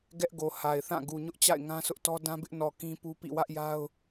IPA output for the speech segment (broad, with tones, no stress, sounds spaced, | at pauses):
ɡ ɛ˦ ʔ ɡ o˨ h a˨ ɪ̯ θ ã˦˨ ɡ u˨ ɲ ʊ˦ ʔ t͡ɕ a̰˦˨ ɪ̯ ŋ ã˦ s ʊ˦ ʔ t ɔ˦ d ã˦ b ɪ˦ ʔ n ɔ˨ k ĩ˦ p u˦ p ḭ˦˨ w ä˦ ʔ j a˦ ʊ̯